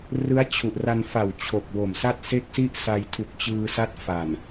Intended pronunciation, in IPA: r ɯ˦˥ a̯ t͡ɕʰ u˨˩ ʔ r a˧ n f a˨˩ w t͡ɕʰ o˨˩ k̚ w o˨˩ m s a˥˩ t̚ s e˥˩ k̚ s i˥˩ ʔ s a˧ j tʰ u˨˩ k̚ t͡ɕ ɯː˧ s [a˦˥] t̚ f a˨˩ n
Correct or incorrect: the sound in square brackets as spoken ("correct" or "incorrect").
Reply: correct